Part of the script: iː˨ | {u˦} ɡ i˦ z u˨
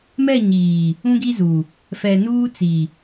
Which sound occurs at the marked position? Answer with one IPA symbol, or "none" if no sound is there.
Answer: ũ˦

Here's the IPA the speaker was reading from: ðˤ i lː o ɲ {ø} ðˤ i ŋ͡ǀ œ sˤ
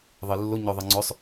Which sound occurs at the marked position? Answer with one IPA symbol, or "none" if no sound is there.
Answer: œ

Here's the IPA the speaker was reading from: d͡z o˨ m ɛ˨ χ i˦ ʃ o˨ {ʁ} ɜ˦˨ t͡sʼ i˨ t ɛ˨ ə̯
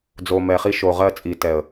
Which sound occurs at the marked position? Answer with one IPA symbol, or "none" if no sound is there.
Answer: ʁ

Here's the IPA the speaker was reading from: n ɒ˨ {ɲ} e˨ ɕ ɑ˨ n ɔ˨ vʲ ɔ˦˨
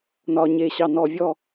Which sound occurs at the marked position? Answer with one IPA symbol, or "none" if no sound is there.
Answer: ɲ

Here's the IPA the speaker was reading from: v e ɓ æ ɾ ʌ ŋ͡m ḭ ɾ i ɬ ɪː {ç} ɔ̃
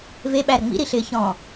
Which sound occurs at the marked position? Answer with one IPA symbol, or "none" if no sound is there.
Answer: ç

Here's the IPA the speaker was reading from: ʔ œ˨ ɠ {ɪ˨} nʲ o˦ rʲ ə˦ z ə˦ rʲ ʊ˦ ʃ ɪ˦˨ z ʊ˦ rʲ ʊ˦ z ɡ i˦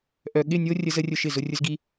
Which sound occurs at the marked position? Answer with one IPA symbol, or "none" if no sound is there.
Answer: ɪ˦˨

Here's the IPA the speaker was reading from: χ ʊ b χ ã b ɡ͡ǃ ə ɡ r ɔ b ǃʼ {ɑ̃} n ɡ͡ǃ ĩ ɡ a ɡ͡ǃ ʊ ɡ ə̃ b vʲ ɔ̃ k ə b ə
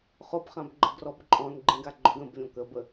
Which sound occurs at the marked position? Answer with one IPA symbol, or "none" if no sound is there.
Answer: ɔ̃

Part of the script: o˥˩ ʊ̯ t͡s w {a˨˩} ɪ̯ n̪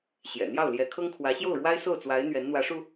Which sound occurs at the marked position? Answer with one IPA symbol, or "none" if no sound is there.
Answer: a˧˥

